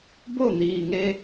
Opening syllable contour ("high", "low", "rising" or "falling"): falling